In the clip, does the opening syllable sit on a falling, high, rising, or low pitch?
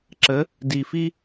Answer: rising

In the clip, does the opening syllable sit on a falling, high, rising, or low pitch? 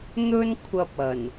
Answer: high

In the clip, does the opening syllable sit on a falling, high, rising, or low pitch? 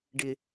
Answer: low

